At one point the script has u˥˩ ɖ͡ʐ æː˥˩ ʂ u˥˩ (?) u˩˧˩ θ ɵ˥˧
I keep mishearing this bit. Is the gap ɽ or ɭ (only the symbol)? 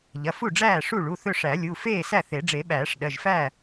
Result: ɭ